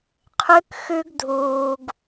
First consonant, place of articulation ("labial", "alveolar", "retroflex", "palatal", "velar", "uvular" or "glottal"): uvular